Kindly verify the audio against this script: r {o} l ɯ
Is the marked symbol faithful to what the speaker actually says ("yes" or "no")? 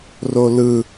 yes